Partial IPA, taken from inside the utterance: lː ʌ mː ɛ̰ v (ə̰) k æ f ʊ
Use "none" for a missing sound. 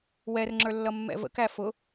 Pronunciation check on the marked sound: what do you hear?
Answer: ə̰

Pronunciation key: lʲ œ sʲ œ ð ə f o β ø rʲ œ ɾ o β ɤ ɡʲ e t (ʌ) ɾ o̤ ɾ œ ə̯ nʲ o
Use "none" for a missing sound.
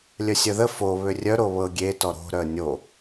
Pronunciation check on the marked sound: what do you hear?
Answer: ɔ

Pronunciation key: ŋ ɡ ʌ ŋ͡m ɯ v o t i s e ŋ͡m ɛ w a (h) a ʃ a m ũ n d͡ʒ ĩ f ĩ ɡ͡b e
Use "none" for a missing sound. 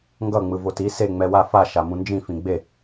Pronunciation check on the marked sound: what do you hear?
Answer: f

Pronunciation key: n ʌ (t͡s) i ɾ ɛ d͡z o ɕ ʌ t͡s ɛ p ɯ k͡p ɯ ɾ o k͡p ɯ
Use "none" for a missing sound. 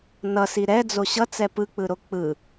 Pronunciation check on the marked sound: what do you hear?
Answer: s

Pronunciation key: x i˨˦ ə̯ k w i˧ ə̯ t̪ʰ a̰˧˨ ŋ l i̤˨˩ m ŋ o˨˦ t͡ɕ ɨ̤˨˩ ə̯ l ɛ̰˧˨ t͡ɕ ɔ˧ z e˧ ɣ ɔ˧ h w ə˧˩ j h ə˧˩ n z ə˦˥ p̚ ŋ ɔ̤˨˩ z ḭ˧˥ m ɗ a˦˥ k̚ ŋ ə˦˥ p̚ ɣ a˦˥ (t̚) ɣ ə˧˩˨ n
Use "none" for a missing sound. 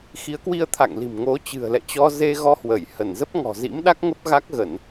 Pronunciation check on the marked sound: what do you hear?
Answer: k̚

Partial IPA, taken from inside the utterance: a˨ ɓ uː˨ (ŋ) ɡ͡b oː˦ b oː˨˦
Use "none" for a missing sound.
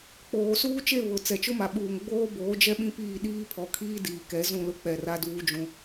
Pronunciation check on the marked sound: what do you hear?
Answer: ŋ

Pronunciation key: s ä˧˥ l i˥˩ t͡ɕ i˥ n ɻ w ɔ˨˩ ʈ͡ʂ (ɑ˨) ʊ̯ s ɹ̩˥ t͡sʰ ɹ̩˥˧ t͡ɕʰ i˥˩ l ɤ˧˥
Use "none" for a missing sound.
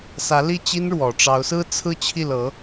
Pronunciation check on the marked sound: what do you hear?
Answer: ɑ˧˥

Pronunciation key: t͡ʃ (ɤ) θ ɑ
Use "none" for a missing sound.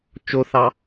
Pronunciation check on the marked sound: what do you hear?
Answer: o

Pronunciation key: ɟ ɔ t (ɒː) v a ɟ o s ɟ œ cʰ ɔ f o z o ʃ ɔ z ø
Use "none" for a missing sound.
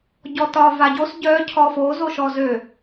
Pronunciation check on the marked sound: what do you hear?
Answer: ɒː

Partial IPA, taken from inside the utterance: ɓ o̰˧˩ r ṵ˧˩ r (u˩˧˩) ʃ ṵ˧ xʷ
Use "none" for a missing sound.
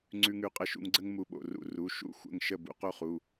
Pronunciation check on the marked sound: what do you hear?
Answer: u˩˧˩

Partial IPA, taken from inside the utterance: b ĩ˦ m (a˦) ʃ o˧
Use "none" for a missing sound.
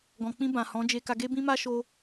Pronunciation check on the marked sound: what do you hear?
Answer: a˦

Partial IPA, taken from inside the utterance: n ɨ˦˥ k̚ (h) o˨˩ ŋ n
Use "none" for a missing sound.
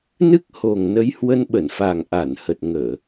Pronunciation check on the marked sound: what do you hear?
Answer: h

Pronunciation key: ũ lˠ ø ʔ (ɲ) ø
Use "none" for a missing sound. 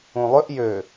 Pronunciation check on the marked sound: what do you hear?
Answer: j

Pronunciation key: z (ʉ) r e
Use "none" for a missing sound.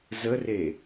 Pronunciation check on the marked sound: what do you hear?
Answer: ə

